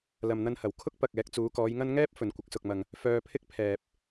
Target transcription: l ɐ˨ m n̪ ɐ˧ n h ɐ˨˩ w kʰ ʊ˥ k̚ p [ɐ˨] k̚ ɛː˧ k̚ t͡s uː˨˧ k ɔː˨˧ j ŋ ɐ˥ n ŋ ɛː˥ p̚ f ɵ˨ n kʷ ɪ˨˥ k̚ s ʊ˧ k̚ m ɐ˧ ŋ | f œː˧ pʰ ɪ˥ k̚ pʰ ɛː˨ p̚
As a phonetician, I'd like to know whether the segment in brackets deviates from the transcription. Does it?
no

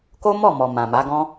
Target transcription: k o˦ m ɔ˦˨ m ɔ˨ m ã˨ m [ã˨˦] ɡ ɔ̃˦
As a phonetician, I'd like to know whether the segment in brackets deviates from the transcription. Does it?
yes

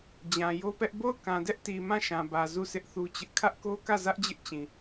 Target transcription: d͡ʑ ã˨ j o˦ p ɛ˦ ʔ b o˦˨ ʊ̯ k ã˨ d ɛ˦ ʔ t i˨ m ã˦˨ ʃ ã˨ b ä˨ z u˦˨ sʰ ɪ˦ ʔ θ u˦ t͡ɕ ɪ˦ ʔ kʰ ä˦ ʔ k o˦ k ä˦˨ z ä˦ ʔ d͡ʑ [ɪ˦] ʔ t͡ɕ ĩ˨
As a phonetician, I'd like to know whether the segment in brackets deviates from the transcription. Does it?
no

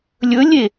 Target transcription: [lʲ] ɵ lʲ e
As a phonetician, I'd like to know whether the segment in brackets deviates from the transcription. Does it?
no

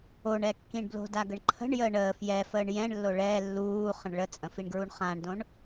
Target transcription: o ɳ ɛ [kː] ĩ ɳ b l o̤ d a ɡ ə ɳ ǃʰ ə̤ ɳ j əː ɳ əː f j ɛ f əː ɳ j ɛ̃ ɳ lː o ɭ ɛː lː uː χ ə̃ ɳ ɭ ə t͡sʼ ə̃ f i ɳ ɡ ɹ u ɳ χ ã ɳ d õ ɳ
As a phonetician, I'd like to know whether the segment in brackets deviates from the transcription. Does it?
no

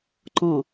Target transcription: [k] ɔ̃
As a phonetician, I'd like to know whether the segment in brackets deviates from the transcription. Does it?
yes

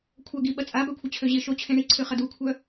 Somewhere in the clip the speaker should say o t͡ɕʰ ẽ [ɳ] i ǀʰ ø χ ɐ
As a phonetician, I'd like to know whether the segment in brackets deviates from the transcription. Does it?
no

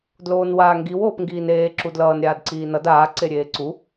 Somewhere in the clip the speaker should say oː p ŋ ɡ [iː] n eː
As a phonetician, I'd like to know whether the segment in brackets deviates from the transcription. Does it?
no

